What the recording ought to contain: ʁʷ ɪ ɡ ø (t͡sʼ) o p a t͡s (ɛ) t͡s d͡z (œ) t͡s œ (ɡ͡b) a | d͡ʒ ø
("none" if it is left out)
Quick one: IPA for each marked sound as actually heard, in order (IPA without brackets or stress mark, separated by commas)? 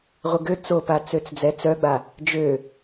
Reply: t͡s, ø, ɛ, ɡ͡b